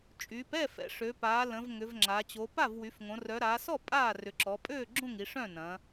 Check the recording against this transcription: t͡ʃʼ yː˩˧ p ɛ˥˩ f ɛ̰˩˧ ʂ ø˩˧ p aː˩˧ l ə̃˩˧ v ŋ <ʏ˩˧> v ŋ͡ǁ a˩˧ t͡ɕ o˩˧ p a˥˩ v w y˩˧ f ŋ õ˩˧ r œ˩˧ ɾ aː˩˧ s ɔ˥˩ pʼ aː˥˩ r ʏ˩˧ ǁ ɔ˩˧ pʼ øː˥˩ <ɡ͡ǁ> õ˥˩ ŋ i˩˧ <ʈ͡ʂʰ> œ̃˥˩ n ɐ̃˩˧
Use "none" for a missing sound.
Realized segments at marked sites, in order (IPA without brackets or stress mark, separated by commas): ʏ˩˧, ɡ͡ǁ, ʂ